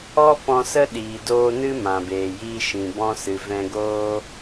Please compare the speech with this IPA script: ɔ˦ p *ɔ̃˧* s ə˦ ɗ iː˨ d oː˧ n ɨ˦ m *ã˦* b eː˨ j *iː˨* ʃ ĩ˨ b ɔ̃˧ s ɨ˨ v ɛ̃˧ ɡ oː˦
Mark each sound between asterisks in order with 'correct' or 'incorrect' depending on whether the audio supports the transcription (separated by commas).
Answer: correct, incorrect, incorrect